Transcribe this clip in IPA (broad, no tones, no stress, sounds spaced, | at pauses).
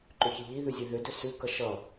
ǃ ʏ ç i ʎ i ð ʉ zʲ ʉ ð ʏ d ʏ s ʉ k ʌ ʃ ʌ